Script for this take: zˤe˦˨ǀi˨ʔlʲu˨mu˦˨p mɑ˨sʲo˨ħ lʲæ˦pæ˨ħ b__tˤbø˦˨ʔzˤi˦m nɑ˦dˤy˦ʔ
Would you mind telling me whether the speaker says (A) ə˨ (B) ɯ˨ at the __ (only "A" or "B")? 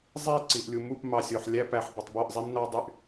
B